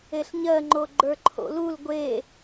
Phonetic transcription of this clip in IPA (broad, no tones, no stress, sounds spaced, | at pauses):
e ɬ ɲ ɜ ŋ͡ǃ o ɡ͡ǃ ə˞ ǃʰ o̰ l u l ɡʷ e